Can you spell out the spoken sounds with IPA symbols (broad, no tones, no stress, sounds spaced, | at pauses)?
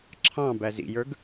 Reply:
ǁʰ ɑ̃ b æ z ḭ j ə˞ ɡ